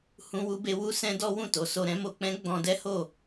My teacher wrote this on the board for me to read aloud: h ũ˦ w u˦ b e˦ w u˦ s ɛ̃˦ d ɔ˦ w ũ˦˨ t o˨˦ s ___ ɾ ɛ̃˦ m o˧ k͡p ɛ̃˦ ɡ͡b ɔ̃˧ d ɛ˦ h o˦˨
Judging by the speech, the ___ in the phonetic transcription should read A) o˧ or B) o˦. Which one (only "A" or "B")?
A